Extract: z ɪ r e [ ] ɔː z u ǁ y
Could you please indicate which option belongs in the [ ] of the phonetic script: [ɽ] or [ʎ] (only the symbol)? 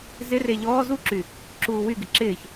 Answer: ʎ